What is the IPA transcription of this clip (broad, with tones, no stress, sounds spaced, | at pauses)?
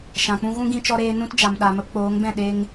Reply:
ʃ ã˨ k͡p ũ˦ ɣ ũ˦ ɡ ĩ˧ t͡ʃ ɔ˧ ɾ eː˧ n ũ˦ t d͡ʒ a˨ m ɗ a˨ m ə˧ p k͡p oː˨˦ ŋ b ɛ̃˦˨ ɗ e˧ ŋ